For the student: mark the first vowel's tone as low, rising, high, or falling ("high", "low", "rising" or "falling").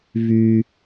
low